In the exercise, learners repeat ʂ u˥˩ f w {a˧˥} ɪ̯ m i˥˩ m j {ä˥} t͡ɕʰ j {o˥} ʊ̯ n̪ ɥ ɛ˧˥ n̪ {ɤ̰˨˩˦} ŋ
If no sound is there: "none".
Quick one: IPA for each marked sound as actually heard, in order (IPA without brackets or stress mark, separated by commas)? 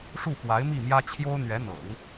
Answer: a˧˥, ä˥, o˥, ɤ̰˨˩˦